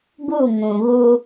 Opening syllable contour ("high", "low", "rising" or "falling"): falling